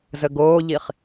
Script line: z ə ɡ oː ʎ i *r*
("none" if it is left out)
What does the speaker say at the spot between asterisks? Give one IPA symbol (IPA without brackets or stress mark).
χ